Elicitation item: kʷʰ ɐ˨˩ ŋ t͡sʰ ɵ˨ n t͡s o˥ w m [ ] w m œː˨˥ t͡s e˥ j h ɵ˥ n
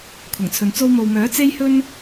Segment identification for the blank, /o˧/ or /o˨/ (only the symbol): o˨